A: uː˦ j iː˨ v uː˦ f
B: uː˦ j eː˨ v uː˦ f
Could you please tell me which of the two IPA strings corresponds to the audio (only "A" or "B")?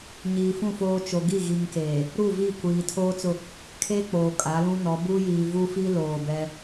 A